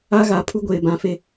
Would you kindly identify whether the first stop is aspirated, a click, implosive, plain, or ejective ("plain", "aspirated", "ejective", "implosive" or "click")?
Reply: aspirated